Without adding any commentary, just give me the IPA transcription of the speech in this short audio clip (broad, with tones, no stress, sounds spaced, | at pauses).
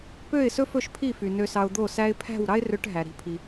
p ø˥˩ ɪ̯ s ɵ˥ f ɵ˥˩ ʃ pʰ i˥˩ f y˩ n ø˧ s ɑ˧ ʊ̯ d̪ o˥˩ s æ˥ ɪ̯ pʰ æ̤˥˩ w ɾ ɑ˥ ɪ̯ r ø˧ ʈ ɦ æ˩ ɾ i̤˩˥ pʰ i˩